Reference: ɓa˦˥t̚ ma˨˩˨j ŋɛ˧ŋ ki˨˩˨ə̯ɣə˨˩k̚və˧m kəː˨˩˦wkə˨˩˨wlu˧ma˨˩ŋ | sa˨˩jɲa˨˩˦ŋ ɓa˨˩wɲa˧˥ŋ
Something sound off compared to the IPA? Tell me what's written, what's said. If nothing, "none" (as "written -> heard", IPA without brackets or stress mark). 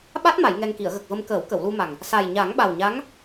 none